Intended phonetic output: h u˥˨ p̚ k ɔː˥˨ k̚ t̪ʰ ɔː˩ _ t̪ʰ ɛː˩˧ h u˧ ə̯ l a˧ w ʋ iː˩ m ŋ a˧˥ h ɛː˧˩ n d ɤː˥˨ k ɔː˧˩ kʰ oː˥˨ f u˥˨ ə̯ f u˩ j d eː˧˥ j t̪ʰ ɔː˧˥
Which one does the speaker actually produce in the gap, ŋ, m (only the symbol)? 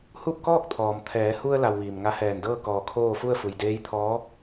m